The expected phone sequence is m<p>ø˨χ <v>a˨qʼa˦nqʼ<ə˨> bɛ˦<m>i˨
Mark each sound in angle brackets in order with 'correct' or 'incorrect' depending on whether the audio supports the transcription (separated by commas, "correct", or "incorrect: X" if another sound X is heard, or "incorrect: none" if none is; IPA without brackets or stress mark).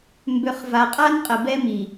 incorrect: b, correct, correct, correct